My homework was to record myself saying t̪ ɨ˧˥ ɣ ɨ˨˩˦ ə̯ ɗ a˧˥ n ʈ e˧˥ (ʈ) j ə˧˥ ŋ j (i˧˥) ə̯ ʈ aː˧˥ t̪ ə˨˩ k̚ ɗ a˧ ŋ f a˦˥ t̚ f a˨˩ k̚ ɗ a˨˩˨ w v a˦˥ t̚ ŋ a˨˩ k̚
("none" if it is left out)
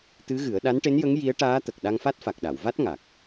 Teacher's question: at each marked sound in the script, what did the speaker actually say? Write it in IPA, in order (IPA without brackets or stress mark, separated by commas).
n, i˧˥